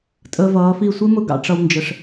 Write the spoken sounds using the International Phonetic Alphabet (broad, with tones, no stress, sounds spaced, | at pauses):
tʼ əː˧ v ʌː˨˦ f i˦˨ sʷ ɪ˦ m ʊ˦ ɡ ɑ̰˧ ʈ͡ʂ ʌ˧ w n d͡ʒ ə˨ ʂ